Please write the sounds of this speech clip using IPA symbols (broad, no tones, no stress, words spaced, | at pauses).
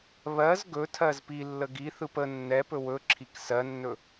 βɜz ɡɵtʰɜz pi lːəɡiθɯp ə nːɛ pɵwɵǁʰik sɜnːɵ